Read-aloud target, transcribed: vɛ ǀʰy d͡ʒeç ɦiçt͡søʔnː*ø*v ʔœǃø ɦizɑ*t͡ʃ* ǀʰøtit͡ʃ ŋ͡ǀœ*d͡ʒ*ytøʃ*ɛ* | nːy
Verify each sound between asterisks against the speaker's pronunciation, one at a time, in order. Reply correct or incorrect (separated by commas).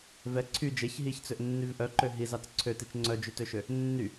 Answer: incorrect, incorrect, correct, incorrect